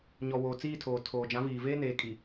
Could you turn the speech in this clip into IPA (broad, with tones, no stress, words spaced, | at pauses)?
ɲɔ˨woː˨t͡siː˦˨tʰoː˨ tʰoː˨d͡ʒã˨˦viː˨veː˦ neː˨kʼi˨